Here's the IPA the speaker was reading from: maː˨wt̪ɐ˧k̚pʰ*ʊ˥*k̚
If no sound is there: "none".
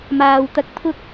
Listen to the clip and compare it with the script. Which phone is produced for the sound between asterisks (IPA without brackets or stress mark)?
ʊ˥